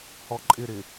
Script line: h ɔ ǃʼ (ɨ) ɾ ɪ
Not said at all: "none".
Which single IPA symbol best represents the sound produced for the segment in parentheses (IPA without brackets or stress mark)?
ɪ